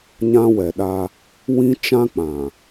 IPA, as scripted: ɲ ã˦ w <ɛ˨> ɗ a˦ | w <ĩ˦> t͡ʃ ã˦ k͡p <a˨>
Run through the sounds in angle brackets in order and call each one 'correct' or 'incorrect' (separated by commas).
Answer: correct, correct, incorrect